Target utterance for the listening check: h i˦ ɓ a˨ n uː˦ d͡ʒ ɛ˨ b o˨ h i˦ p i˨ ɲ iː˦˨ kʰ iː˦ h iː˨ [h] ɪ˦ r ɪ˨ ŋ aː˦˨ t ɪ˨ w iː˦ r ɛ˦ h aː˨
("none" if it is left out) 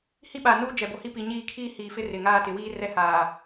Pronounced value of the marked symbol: f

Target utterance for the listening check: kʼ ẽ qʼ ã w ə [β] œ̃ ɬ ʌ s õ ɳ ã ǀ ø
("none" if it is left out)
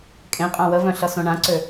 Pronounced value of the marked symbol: v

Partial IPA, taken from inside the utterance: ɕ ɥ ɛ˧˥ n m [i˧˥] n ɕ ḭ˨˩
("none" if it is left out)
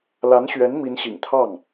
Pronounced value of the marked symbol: i˧˥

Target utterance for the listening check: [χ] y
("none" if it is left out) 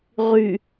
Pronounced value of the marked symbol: ʁ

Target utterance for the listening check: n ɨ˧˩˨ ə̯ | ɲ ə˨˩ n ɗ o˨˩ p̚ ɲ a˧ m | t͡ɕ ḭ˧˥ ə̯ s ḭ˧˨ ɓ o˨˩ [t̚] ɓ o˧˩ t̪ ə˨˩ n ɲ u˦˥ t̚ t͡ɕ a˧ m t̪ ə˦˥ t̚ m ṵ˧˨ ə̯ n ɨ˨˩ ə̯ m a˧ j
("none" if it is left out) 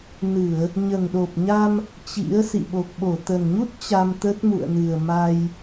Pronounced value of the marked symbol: k̚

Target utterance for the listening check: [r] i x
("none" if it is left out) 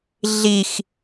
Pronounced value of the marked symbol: ɮ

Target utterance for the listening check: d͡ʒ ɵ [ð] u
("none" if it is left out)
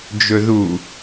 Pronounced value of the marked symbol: ð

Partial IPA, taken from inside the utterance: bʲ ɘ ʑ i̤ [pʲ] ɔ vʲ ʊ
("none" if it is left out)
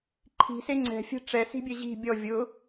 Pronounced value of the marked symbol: bʲ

